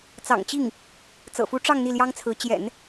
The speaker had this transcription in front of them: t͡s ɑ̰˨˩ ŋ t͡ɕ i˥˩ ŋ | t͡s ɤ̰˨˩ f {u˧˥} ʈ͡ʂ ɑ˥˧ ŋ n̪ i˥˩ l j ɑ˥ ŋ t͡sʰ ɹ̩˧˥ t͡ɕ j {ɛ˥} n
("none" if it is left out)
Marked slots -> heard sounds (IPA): u˧˥, ɛ̰˨˩˦

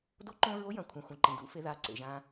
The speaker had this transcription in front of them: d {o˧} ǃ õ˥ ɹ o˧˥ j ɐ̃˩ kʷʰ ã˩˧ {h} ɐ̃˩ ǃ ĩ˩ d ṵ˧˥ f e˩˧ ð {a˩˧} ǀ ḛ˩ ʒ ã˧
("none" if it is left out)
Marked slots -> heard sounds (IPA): o˥, xʷ, a˩˧

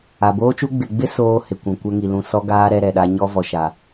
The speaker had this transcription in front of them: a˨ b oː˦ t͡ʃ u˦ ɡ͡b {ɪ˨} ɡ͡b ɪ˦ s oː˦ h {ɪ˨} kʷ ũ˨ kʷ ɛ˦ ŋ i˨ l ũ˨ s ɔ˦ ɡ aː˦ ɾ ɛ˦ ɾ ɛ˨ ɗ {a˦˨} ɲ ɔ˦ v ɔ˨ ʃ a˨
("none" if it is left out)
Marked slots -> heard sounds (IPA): ɪ˨, ɪ˨, a˦

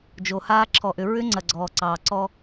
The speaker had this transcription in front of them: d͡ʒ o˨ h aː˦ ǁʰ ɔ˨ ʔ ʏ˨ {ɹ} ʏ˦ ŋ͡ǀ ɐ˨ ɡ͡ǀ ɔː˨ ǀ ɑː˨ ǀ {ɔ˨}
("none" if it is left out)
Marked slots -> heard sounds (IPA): ɹ, ɔ˦

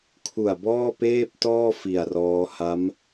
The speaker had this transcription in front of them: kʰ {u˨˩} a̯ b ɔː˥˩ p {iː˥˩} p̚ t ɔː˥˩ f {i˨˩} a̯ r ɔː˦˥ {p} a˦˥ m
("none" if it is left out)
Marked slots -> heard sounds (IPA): u˨˩, eː˥˩, i˨˩, h

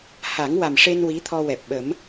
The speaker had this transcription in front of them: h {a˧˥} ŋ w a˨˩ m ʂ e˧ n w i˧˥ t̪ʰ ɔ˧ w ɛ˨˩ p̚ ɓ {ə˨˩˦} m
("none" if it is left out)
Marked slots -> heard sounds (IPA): a˨˩˦, ə˨˩˦

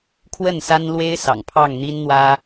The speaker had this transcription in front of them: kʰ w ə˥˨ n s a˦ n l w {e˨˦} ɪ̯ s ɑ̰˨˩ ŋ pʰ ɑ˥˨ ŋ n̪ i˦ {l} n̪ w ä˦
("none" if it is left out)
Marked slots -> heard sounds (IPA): e˦, n

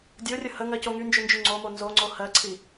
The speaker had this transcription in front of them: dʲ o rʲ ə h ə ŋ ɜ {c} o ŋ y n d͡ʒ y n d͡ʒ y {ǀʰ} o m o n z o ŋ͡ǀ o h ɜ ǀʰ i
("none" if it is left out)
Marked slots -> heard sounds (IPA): c, ŋ͡ǀ

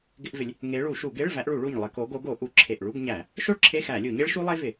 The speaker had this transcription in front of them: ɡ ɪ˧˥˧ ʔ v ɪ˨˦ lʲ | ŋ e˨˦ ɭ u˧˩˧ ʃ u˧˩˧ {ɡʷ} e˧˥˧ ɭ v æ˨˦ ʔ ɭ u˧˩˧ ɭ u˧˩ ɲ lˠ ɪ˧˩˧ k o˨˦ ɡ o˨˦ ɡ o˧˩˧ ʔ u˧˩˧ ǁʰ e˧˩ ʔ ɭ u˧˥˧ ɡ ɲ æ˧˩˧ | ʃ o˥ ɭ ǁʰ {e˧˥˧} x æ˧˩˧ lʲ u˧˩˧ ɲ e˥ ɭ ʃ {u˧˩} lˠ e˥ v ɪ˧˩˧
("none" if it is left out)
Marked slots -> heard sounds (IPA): ɡ, e˧˥˧, u˥

